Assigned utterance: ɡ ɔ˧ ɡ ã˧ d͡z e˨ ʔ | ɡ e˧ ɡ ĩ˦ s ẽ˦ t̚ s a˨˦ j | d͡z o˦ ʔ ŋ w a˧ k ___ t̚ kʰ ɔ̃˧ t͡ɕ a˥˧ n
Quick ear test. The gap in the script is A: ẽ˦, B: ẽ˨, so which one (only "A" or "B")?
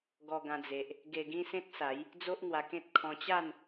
A